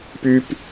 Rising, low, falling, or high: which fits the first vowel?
high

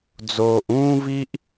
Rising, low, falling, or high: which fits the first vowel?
low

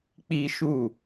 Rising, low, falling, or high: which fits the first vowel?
high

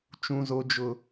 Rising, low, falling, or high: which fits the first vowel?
low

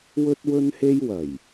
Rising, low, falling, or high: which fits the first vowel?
high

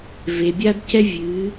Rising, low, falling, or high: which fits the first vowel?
low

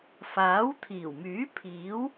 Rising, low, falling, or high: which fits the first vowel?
rising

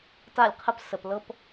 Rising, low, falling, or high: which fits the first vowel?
falling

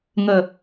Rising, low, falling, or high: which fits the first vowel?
low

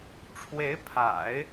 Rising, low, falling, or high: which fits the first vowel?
rising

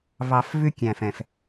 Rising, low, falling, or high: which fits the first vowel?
low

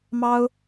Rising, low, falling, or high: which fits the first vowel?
high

